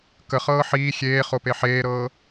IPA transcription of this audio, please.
kəχɤː ħiː xʲeːχope ħeːɾɤː

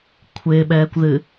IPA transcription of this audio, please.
kʷʰɪːɓɛːkʷðɨ

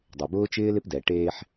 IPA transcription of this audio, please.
dˤɪ˨bʊː˦t͡ʃɪː˦ lɪ˦pdɛ˨ʈeː˦ħ

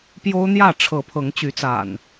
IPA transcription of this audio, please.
pjo˦ʊ̯n̪jä˥˨ ʈ͡ʂʰɤ˨˦pʰɤ˨˦ŋ t͡ɕy˨˦t͡sa̰˨˩n

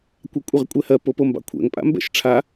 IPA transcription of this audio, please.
kʷɑkʷʼɛʁkʷʼɛhɜ popombɑ̰kʷʰɛ̰ŋ pʼa̰mbɛ̰ʃʈ͡ʂʰa

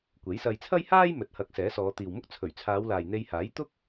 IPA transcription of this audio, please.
kʷe˨˥jsɐ˧j t͡sʰɐ˥jhaː˥j mɵ˨˥t̚hɐ˨˥k̚ sɛː˨˥sɔː˨˧ t̪iː˨wmʊ˥k̚ t͡sʰɵ˨˩ɥt͡sʰaː˨˧wlaː˨j n̪e˧jhaː˨˥j t̪ʊ˥k̚

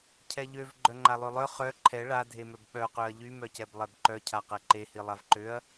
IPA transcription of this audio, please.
cʰɛʎøv ɡ͡ǃœŋ͡ǃalˠølˠœ χœ ǃʰɛ ɭadʱemœb ɓœqøɐ̯ ʎymœcɛb lˠɛbǃœcʰaqɛ ǃehi lˠavǃøɐ̯

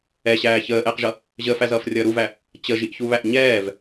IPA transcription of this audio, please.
ɛɕæː çəːʔɛːqʒʌ | ʑəːfæzʌːfrʲʌː ɾuvæ | t͡ɕəʒiʔçuβæʔ ɲɛːv

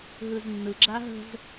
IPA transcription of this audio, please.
ɦɯznːɯ ɡ͡ǁaɦə̤z

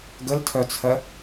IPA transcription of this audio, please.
ɡəltʰœt͡sʰɜ

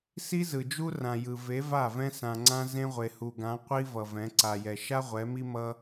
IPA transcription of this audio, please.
si˦zɯ˨d͡ʒu˦rã˨ jɯ˨ve˨˦va˦˨ vɛ̃˦sã˨ŋ͡ǀã˦ zẽ˦ʁʷe˨hu˨ɡã˨˦ qʷi˦ vʌ˨vɛ̃˨˦ ǀa˨jɛ˨ ʃa˦ ʁʷɛ˨˦mi˦mʌ˦

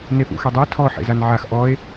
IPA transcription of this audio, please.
nefṵxɛdˤɛ tʰɔ ħḛzanʕax ʔɔe̯

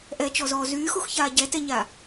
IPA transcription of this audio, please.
ʔɛt͡ʃɔzɔː zyːxuxçaː ɟɛtɛɲa

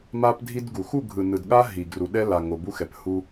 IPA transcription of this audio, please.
ma˦pdʱi˦dɡu˨ xu˦˨ɡʱɯ˨nɯ˨dɠa˦ ɦi˨ɡru˨ ɗɛ˦la˨ŋo˨ bu˦xɛ˨phu˦

